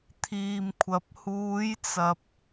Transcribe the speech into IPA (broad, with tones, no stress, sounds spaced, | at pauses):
t̪ʰ iː˨ m kʷʰ ɐ˨ p̚ h uː˨˧ j t͡s ɐ˨ p̚